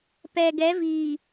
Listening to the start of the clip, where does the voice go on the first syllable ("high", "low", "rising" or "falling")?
low